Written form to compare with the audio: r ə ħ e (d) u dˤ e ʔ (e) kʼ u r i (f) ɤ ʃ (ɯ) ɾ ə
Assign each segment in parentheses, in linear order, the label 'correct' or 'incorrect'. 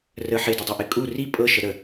correct, correct, incorrect, incorrect

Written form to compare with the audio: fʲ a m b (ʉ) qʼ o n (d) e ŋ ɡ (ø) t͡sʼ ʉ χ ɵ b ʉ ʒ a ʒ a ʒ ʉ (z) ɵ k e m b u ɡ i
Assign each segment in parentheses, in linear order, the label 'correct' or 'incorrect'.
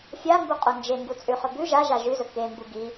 incorrect, incorrect, incorrect, correct

